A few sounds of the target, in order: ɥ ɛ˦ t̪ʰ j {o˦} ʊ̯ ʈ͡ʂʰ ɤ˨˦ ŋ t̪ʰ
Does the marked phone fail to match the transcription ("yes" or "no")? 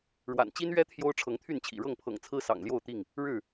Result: no